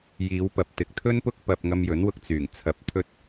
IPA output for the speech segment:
jiː˨˧wpɐ˨p̚ t̪ɪ˨k̚t̪ʰɵ˥npʊ˥k̚ pɐ˧p̚ ŋɐ˧mjɵ˨˥nwʊ˧k̚ t͡syː˨˩ŋ t͡sʰɐ˧p̚t̪ʰɵ˥t̚

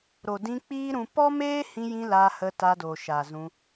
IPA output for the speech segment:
ɾo˨dĩ˧ k͡piː˦ɾũ˧ pɔ˦meː˦hĩ˧jĩ˧ la˧hə˧ta˧ do˨ʃa˨ zũ˧

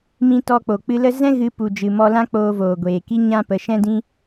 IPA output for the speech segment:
mĩ˧tɔ˧k͡po˨ k͡pɨ˧lə˦ zɛ̃˦ɣɨ˨˦ pu˨ d͡ʒɨ˨mɔ˧lã˦ k͡poː˧voː˨ɡʷeː˨ki˦ ɲã˦pə˨˦ ʃɛ̃˦dĩ˦

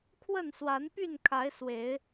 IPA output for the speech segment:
kʰwə˥˨nswa˨˦npy˥˨nkʰa˨˦ɪ̯ swe˨˦ɪ̯

